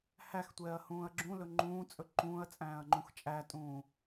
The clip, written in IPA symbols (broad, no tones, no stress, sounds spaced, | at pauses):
h æ x tʷ ɛː ɐ̯ h ũː ɐ̯ ɡ͡ǁ ũ l ɵ ŋ͡ǃ ũː t͡sʼ ɵ ǃ ũː ɐ̯ t͡sʼ æ̃ː ɐ̯ ŋ͡ǃ ũ x t͡ʃʼ æ tʼ ũː